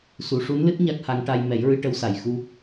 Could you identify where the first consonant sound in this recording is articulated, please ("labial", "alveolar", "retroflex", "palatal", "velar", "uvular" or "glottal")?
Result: alveolar